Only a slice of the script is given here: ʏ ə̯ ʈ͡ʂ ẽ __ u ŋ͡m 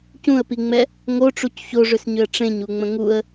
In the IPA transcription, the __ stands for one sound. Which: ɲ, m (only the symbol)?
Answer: ɲ